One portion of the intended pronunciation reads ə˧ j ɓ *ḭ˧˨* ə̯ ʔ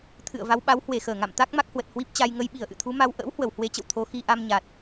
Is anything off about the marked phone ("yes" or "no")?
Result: yes